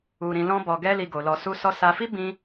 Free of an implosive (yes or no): yes